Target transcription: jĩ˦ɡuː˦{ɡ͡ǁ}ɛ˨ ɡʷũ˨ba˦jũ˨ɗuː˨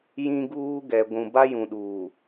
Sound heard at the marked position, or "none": ɡ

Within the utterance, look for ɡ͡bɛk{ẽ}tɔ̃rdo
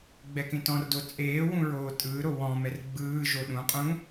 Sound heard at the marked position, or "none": ẽ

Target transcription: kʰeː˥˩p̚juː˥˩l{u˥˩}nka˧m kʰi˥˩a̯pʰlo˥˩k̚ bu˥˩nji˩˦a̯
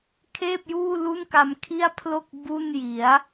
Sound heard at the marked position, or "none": u˥˩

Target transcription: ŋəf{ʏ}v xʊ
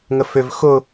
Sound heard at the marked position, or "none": ʏ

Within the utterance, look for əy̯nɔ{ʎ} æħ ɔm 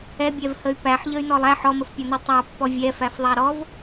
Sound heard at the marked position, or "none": lˠ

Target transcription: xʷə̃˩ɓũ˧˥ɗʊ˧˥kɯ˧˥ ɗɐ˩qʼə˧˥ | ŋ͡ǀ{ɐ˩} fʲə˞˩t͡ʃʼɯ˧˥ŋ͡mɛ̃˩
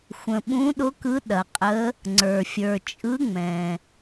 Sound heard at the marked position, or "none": ə˞˩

